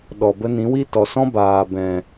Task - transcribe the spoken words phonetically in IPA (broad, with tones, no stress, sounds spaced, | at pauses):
ɗ ɔ˨ b ə˧ n ĩ˨˦ w i˦ t ɔ˨ s ɔ̃˦ b aː˨ b ɛ̃˨